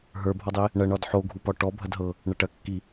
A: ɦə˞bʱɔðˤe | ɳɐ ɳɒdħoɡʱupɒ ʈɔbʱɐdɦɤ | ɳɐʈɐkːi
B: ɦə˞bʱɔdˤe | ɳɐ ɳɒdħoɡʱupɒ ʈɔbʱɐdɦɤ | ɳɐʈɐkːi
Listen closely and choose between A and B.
B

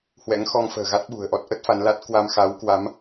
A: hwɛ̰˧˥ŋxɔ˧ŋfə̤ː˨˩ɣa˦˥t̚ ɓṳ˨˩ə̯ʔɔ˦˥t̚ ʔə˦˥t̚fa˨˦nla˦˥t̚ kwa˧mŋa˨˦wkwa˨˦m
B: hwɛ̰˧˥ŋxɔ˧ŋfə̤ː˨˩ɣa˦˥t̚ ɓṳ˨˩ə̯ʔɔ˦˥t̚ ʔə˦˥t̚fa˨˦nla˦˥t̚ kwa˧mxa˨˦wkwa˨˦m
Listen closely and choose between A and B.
B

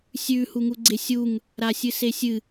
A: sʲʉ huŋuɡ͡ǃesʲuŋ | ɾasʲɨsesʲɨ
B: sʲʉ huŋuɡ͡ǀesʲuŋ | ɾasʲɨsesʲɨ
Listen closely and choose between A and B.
B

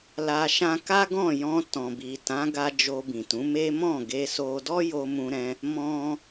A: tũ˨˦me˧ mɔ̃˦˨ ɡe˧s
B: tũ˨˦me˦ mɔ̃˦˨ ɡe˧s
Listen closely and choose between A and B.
B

